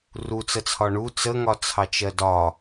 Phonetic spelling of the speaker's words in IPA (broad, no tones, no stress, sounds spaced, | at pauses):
r u t͡s ə t͡sʰ ɒ ɳ u t͡s ə ŋ ɒ t͡sʰ ɑ t͡ʃ ɜ d ɒ